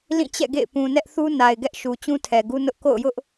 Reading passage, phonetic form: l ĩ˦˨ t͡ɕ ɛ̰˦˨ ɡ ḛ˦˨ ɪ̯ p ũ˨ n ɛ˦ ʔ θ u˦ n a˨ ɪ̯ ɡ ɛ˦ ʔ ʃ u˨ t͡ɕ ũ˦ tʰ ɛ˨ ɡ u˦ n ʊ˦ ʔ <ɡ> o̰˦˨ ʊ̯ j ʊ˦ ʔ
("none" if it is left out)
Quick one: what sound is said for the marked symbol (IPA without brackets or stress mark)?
k